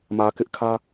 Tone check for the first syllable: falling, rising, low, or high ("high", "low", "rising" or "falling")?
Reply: low